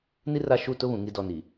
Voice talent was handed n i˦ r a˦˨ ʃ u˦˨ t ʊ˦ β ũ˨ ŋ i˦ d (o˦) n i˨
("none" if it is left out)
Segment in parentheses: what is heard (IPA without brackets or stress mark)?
ɔ˦